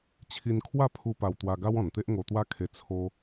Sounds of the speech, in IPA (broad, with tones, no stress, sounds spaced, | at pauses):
t͡ɕʰ i˧ n kʰ w a˥˧ pʰ u˧ p a˧ w t̪ w a˧ ɡ a˦ w ɔ̃˨˩ n t̪ e˦ ʔ ŋ o˧ t̪ w a˦ kʰ e˧ t͡sʰ o˧